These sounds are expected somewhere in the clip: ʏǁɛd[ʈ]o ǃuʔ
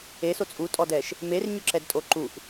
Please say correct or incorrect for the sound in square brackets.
incorrect